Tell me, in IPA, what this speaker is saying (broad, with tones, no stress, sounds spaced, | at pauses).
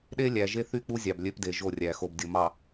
ɗ e˦ lʲ æ˨ ʒ e˦ θ y˦ k͡p u˦ zʲ ɑ˨ b lʲ ø˦ p d e˨ ʒ o˦˨ rʲ æ˨ x o˨ b dʲ o˨ m ɑ˨